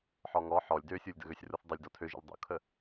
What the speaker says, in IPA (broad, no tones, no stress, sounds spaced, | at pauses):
ħ ɔ ŋ ɔ ħ ɔ lʲ d ø sʲ u lʲ d ə̰ ɣ ø sʲ r u θ dˤ ə lʲ d ɔ tʰ ø ʒ ə̰ l dˤ ṵ kʰ ə